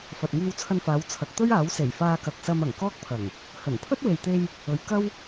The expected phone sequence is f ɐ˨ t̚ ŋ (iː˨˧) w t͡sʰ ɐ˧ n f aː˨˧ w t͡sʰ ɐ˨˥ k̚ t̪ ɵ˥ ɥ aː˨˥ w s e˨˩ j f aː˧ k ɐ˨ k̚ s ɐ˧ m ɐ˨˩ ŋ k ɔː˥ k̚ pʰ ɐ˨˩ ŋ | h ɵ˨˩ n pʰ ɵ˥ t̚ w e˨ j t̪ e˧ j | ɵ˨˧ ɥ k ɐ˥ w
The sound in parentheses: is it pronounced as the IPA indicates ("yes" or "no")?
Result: no